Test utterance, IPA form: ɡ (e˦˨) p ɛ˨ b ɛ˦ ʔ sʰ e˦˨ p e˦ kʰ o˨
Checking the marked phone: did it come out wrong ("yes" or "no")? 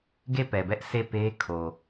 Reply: no